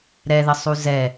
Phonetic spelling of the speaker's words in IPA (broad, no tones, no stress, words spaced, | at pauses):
ɾɛðəsˤu zɛ